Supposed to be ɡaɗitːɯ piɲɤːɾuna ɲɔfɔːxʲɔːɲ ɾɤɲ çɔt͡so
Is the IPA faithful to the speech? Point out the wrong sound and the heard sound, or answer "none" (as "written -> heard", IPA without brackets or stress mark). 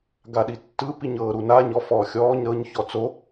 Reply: none